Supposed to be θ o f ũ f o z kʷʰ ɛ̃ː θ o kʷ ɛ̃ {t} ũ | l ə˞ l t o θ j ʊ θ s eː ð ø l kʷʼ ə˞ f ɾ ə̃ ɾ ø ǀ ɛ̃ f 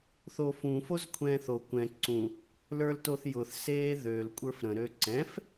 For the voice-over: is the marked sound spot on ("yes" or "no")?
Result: no